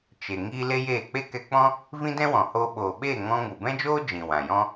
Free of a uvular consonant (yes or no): yes